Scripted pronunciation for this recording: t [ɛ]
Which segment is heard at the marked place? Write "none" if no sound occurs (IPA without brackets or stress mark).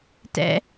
ɛ̰